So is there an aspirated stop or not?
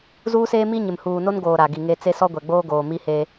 no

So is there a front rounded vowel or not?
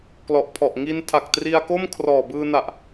no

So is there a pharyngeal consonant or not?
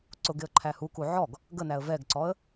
yes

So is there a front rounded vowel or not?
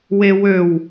yes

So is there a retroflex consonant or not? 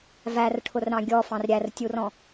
yes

